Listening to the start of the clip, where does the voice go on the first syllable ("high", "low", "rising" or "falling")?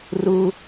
high